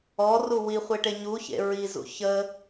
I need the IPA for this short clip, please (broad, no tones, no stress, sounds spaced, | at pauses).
ɔ r u w i χʷ e ʈ e ɲ u ç ḛ ɹ i z ṵ ç ə